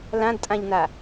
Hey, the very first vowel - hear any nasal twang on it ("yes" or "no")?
yes